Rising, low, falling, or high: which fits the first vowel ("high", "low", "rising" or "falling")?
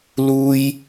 high